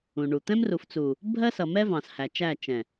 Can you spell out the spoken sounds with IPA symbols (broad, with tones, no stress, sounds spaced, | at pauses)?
ũ˨ ɳ u˨ t̪ ɛ̃˦ m r u˨ f t͡s u˨ | bʱ ɜ˦ s ʌ˨ m ɛ˦ v ɑ̃˨ s h æ˨ t͡ʃ æ˦˨ t͡ʃ ɛ̃˨